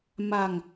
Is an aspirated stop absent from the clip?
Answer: yes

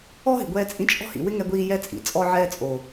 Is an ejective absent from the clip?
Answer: no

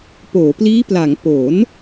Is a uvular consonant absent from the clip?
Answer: yes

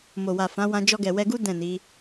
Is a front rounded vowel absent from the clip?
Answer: yes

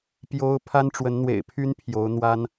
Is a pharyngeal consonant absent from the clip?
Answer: yes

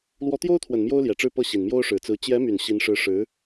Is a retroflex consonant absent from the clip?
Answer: no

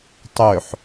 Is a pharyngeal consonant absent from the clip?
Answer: no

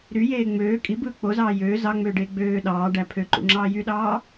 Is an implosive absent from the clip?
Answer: no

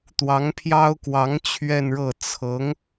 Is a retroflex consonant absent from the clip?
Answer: no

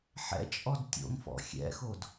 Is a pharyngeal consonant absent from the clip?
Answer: no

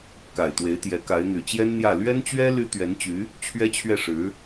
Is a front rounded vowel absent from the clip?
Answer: no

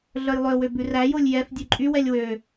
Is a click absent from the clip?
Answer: no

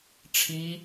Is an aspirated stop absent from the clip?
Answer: no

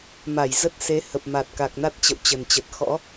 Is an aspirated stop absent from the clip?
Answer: yes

